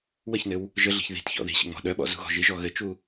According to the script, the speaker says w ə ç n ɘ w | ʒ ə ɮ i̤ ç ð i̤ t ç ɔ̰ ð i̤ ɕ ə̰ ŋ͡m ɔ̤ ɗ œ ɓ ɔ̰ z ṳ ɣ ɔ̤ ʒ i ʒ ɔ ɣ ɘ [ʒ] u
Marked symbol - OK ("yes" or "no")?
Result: no